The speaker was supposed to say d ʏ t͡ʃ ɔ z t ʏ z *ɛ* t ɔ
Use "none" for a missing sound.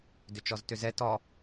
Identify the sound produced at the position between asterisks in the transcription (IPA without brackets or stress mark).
ɛ